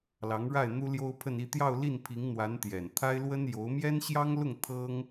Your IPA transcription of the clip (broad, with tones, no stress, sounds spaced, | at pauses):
l ɑ˧˥ ŋ ɻ a˥˩ ɪ̯ n̪ u˥ l j o˥ ʊ̯ pʰ ə˥˧ n i˥˧ t̪ j ɑ˥˧ ʊ̯ l i˥˩ n pʰ i˧˥ ŋ n̪ w a˧˥ n t̪ j ɛ˨˩ n t̪ʰ a˥ ɪ̯ l w ə˥ n j o˧˥ ʊ̯ m j ɛ˥ n ɕ j ɑ˥ ŋ l ʊ˥˩ ŋ t̪ʰ ɤ˥ ŋ